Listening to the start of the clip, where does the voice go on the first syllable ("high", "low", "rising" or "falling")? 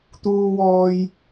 high